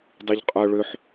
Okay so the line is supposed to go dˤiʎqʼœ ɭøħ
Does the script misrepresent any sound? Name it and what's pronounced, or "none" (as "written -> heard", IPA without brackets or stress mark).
none